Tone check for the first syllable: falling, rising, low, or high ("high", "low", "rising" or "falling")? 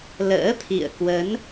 rising